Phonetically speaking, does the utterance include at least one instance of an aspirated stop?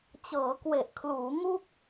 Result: yes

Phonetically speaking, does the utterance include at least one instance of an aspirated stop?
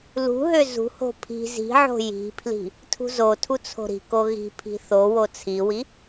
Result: yes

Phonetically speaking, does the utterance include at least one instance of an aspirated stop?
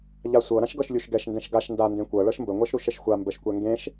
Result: no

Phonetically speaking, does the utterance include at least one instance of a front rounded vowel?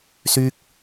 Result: yes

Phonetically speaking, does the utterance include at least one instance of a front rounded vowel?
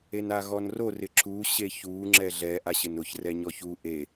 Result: no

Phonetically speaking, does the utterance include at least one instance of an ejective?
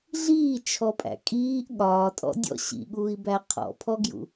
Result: yes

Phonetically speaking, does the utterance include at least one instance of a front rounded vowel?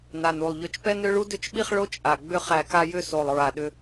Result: yes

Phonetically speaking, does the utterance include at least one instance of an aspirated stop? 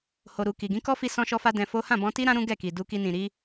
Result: no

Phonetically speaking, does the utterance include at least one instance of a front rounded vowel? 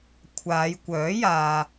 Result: yes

